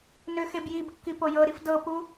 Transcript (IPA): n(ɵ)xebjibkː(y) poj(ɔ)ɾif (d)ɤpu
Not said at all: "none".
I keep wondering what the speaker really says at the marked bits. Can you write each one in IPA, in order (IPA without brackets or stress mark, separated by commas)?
ø, i, ɤ, d